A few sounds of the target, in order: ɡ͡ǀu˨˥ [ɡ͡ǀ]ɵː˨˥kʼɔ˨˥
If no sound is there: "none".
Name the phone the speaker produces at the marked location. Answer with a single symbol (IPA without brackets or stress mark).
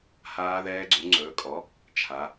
ŋ͡ǀ